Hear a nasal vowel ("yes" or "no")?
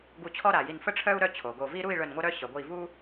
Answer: no